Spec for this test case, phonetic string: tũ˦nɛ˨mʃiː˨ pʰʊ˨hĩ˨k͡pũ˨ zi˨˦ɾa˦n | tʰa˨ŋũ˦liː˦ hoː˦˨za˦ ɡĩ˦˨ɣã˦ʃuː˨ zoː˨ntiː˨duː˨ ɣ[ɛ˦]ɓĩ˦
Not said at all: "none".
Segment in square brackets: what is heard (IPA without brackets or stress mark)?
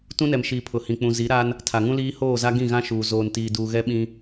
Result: ɛ˦